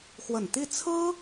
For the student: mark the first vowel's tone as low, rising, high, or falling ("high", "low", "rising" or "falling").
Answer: low